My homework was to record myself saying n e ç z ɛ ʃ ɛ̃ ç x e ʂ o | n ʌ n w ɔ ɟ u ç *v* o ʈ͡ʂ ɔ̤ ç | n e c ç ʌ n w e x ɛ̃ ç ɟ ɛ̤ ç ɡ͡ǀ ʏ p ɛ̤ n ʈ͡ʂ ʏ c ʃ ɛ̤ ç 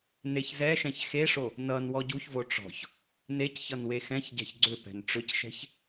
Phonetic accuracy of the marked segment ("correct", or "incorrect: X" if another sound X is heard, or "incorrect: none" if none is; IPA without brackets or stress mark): correct